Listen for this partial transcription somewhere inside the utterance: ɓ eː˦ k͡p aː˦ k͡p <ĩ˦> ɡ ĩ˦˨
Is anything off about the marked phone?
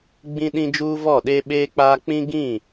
no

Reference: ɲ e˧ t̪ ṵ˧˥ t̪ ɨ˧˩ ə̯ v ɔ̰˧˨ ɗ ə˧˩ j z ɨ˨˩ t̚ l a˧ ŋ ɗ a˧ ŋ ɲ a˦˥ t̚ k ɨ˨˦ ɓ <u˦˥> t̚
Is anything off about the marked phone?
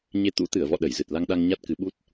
no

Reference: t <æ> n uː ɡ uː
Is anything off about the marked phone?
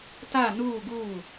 yes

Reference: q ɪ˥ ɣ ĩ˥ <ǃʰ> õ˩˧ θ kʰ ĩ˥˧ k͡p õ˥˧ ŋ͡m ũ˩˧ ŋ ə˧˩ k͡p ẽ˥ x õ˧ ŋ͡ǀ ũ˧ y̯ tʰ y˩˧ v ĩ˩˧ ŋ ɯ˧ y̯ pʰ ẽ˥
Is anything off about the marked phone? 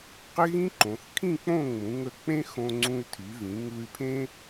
yes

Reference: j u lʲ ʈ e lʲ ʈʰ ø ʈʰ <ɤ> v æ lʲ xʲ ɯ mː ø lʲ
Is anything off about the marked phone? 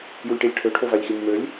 yes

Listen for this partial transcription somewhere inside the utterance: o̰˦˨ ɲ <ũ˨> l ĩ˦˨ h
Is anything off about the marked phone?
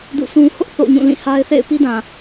yes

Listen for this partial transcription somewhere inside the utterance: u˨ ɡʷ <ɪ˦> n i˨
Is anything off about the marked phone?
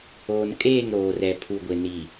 yes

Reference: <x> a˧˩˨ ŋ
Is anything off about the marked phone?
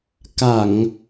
yes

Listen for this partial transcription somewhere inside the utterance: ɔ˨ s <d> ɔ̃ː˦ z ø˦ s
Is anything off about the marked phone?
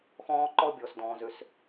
no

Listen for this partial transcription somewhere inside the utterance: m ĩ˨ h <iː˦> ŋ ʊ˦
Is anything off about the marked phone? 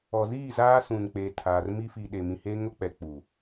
yes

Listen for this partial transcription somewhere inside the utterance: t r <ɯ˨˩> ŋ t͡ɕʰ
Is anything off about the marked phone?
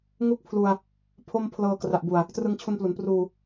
yes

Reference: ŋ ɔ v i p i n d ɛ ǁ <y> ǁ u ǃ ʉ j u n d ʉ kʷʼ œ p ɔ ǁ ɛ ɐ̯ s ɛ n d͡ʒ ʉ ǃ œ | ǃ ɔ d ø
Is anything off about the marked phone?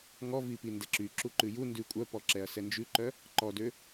no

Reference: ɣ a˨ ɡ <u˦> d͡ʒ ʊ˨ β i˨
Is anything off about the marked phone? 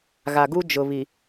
no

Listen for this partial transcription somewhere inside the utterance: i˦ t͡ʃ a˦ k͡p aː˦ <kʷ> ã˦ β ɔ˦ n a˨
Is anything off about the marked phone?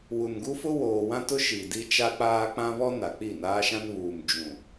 yes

